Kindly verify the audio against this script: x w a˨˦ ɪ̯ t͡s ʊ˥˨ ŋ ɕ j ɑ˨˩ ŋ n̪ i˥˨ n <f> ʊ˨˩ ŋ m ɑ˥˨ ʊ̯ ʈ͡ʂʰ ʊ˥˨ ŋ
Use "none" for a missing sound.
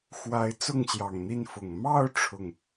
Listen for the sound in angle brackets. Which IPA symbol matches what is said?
f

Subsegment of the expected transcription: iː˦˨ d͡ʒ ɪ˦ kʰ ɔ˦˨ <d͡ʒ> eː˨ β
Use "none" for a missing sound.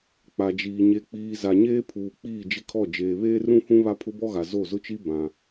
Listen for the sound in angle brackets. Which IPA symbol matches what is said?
d͡ʒ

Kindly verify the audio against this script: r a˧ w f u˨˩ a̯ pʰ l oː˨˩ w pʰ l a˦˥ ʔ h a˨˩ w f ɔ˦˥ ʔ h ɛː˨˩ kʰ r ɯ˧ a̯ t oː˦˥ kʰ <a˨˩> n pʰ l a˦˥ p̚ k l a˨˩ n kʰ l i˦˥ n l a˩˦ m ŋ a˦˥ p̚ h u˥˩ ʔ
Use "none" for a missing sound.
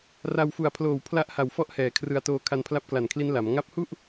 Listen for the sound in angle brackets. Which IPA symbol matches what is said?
a˧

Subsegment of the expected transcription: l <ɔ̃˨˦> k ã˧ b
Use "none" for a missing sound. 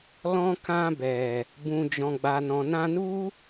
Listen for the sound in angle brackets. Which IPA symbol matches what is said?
ɔ̃˧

